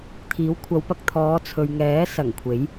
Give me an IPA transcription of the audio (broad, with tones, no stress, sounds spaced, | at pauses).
t̪ʰ iː˨˥ w kʷʰ ɐ˨˧ w p ɐ˧ k̚ t̪ʰ ɔː˨˧ t͡sʰ ɵ˨ ɥ ŋ ɛː˨˥ s ɐ˨˩ ŋ kʷʰ e˨˥ j